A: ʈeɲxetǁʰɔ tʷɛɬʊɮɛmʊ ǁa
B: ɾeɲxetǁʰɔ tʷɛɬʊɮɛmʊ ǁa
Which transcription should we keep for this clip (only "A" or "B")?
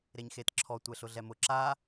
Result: B